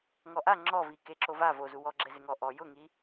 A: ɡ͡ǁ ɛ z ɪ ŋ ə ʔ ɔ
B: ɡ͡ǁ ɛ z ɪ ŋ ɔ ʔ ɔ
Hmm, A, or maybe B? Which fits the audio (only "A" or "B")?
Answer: B